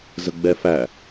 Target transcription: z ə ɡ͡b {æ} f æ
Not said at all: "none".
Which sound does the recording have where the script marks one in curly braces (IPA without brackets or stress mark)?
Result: ɛ